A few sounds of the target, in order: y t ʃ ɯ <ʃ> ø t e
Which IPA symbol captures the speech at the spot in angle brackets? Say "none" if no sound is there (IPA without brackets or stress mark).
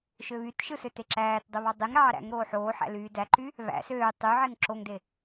s